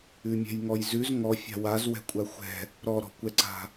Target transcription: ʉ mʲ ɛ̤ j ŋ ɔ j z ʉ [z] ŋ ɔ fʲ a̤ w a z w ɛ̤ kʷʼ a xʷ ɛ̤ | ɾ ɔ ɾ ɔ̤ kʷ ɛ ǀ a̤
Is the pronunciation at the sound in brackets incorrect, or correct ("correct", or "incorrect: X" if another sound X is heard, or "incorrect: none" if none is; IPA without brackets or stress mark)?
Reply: correct